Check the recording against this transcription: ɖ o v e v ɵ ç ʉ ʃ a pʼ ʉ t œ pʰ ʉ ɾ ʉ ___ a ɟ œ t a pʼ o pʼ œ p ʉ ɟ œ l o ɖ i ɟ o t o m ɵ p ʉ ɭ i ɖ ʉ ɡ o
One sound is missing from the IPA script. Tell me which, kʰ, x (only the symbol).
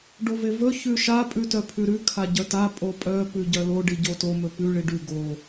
kʰ